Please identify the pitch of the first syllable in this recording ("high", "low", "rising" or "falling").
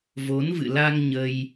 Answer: rising